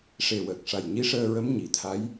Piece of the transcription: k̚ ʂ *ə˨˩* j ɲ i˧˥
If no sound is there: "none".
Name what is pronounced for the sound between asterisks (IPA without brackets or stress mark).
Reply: a˨˩